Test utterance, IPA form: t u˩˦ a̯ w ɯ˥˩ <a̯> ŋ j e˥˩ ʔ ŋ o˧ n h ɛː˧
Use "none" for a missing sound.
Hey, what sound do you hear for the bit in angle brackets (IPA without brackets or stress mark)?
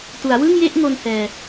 none